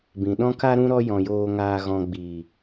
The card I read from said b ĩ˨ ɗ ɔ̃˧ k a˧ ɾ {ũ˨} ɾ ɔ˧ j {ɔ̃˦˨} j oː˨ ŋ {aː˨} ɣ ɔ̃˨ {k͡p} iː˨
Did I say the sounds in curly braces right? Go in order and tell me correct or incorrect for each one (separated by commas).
incorrect, incorrect, correct, incorrect